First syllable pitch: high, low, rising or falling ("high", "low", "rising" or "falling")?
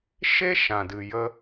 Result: high